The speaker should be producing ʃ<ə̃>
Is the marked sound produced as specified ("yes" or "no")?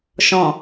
no